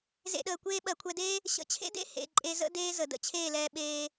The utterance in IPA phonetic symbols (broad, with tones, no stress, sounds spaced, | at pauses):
z ḛ˧ ɗ əː˨ kʷ eː˦ ɓ ɜ˨ kʷʰ ɛ˧ d eː˦ | ɕ ə̰˧ t͡ɕʰ ḛ˦ d ḛ˦ h ḛ˨ ǃʼ e˧ z ə̰˦ d eː˦ z ə˨ d ə̰˧ t͡ɕʰ eː˦˨ l ɛː˧ ɓ eː˧